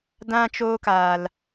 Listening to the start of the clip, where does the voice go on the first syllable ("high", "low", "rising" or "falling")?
high